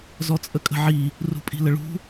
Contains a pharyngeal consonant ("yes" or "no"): yes